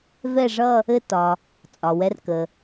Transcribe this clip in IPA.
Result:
v ɛ˥˧ ʐ ʌ˥˧ | ɘ˥˧ t ɒ˩ | t͡sʼ ɒ˩ w ɛ˧ r k ə˩

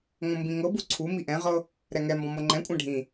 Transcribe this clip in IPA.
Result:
ŋ õ m b ĩ ŋ ɤ b u ǀʰ u m i ʔ ɛ̃ ʁ ɤ | ɾ ɛ ŋ ɛ m b ɔ̃ m ɤ ŋ͡ǃ ɛ̃ kʷʼ ɛ̃ ɖʱ ĩ

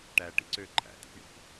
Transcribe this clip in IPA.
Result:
ʈ æ ʈ ḭ ǀ ø ǃʰ æ̰ t̪ ḭ p ɳ ḭ p

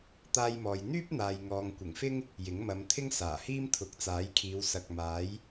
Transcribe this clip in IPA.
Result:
t̪ aː˥ j m ɔː˧ j n̪ yː˥ p̚ n̪ aː˧ j ŋ ɔː˧ ŋ kʷ ɪ˨˩ ŋ f ɪ˥ ŋ | j ɪ˨˥ ŋ m ɐ˨˧ m t̪ʰ ɪ˥ ŋ s aː˨˩ h iː˥ m t̪ʰ ʊ˨˥ k̚ t͡s aː˨˥ j kʰ iː˨˧ w s ɐ˨ k̚ m aː˨˥ j

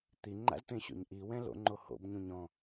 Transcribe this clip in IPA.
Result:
t̪ i ŋ͡ǃ a̰ z t̪ ẽ ɕ o̰ ɲ ʔ i w ɛ̃ l o̰ ŋ͡ǃ o h o̰ b ɲ ũ ɲ ɔ̃

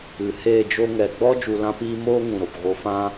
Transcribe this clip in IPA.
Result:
ɨ˨ h eː˦˨ d͡ʒ o˦ ŋ ɛ˨ ɡ͡b ɔ˦ d͡ʒ u˧ l ã˦ p iː˦ m oː˦ ŋ ũ˨ ɾ o˨ p ɣ o˧ f ã˦

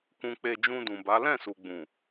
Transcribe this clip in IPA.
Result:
k ũ˧ k͡p e˧ d͡ʒ ũ˧ d ũ˨ b a˨˦ l ɛ̃˦˨ s u˨ ɡ͡b ũ˨

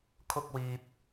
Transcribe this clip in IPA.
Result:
kʰ ʊ˧ k̚ w iː˨ p̚

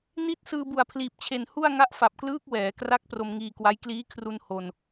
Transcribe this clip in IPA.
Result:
n i˥˩ t̚ s ɯː˧ b u˨˩ a̯ pʰ l iː˨˩ p̚ t͡ɕʰ e˨˩ n h u˥˩ a̯ ŋ a˦˥ ʔ f a˨˩ p̚ k l ɯː˦˥ k̚ w ɛː˩˦ k r a˦˥ k̚ p r o˧ m ŋ iː˧ k w a˦˥ j k l iː˦˥ kʰ r u˧ n h o˧ n

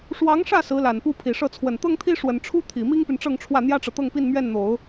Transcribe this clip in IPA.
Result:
ʂ w ɑ˧˥ ŋ ʂ ä˥˩ s ɹ̩˧˥ l a˨˩ n p u˥˩ pʰ i˨˩ ʂ ɤ˥˩ t͡sʰ w ə˨˩ n t̪ ɤ˥ ŋ t̪ʰ i˥ ʂ w ə˨˩ n ʈ͡ʂʰ u˥ t̪ʰ i˨˩ m i˥ ŋ p y˨ n ʈ͡ʂ ɤ˥˧ ŋ ʈ͡ʂʰ w ä˥˩ n̪ j ä˥ ʈ͡ʂ ɤ˨ t̪ ɤ˥˧ ŋ p i˥˧ n m ɥ ɛ˥˩ n n̪ o˨˩˦ ʊ̯

